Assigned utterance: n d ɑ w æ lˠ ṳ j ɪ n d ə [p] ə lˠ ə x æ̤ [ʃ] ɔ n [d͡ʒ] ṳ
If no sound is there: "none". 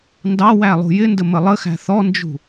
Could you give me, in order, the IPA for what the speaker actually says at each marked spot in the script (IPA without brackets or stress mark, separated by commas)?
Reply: m, θ, d͡ʒ